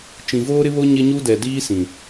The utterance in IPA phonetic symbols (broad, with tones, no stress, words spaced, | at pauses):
t͡ʃĩ˨voː˦ɾɪ˦βo˦ ɲɪ˦ɲu˦ dɛ˨diː˦sĩ˨